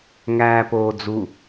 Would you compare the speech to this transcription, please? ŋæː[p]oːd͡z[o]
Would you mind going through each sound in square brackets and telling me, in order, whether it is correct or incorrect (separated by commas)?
correct, incorrect